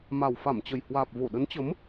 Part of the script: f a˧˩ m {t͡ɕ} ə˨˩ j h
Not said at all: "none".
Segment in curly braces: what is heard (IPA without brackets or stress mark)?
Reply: t͡ɕ